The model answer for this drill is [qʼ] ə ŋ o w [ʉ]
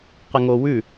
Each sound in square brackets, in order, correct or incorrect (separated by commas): incorrect, correct